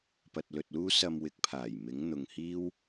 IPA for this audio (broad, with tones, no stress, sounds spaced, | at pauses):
p ɐ˧ t̚ l ɵ˧ t̚ l uː˥ s ɐ˧ m w ɪ˨˥ k̚ pʰ aː˨˩ j m ɪ˨˥ ŋ n̪ ʊ˧ ŋ h iː˥ w